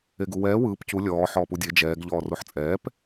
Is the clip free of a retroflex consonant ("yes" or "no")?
yes